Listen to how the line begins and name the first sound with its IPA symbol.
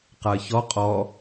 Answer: q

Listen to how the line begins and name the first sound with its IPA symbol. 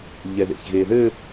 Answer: ʎ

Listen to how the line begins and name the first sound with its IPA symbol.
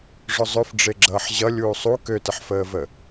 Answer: ʐ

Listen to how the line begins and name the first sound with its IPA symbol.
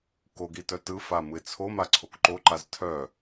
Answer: k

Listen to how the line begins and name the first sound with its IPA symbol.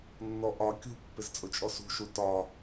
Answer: nː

